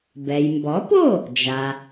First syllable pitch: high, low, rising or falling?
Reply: low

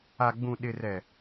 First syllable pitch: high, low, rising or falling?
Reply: low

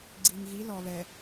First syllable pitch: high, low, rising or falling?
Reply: low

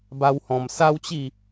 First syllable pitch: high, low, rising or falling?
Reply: high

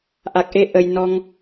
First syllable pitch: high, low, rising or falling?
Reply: low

